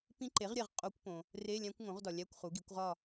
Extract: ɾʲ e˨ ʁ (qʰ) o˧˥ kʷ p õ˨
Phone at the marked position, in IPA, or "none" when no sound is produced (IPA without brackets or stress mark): qʼ